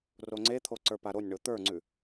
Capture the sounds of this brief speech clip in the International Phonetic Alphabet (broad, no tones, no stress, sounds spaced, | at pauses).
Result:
r o ŋ͡ǀ e t̪ʰ o ǀ ə˞ p a ɾ o nʲ ɳ o t̪ ə˞ ŋ͡ǀ ʉ